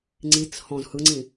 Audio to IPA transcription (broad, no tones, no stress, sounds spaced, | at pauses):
ŋ͡ǀ i t͡s h ɔ̃ z h ɯ ŋ͡ǀ ĩ